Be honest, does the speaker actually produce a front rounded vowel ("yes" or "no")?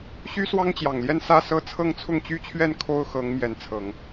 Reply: yes